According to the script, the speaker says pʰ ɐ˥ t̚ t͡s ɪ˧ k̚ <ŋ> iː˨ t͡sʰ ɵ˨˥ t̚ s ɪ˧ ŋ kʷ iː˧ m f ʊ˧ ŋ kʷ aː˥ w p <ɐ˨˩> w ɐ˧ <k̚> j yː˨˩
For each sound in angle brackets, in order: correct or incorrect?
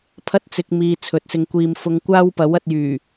incorrect, incorrect, incorrect

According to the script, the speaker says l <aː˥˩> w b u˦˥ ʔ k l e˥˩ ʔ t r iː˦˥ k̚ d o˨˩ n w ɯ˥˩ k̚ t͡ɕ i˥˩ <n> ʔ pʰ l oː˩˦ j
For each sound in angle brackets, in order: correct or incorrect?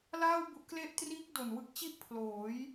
correct, incorrect

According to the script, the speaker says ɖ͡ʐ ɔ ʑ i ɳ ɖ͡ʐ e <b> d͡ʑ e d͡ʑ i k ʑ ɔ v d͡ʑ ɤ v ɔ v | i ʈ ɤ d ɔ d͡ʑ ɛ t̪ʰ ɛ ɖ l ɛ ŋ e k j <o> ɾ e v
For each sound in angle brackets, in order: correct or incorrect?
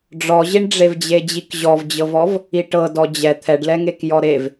incorrect, incorrect

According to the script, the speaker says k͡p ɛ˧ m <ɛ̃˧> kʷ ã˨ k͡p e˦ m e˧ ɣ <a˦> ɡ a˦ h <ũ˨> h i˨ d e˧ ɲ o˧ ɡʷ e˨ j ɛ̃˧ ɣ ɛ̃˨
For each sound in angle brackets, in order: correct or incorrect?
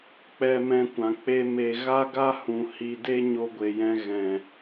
correct, correct, correct

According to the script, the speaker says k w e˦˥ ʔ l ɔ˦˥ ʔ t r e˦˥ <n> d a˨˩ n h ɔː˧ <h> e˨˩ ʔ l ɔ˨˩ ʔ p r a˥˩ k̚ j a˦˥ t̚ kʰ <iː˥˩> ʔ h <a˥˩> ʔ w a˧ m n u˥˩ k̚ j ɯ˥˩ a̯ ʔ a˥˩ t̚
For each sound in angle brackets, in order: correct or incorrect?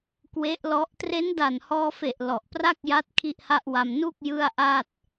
correct, incorrect, incorrect, correct

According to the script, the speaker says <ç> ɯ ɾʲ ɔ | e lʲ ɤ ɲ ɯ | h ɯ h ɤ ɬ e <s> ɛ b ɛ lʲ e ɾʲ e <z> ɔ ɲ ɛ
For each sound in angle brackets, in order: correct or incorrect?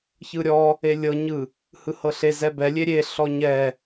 correct, incorrect, incorrect

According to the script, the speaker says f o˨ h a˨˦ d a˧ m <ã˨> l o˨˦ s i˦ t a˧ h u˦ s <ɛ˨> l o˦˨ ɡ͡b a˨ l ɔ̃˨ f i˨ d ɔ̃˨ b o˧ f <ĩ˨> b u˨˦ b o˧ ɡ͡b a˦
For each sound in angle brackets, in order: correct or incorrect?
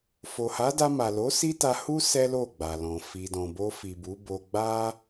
incorrect, incorrect, incorrect

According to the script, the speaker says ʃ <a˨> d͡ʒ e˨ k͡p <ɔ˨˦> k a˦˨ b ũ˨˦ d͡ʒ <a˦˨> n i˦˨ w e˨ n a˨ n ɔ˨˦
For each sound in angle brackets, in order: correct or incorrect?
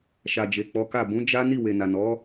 correct, correct, incorrect

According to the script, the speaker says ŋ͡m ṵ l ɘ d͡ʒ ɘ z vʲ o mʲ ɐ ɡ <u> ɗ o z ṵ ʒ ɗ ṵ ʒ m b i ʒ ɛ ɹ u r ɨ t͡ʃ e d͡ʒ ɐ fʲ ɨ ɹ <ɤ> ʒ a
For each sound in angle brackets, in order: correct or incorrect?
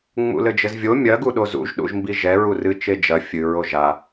correct, incorrect

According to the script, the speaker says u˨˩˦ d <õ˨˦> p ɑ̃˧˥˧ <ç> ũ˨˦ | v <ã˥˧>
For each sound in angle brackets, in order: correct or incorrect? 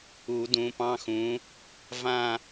incorrect, incorrect, correct

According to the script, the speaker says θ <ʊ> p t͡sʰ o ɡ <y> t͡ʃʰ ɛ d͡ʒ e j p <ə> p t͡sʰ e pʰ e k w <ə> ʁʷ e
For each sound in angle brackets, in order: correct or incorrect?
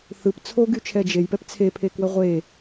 incorrect, correct, incorrect, correct

